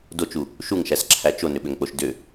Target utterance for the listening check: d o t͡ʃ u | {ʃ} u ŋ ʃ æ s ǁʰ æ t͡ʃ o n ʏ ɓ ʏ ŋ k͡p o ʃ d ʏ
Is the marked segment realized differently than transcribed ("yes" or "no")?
no